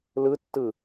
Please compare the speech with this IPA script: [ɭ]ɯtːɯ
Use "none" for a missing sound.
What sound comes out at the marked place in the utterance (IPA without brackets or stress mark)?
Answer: l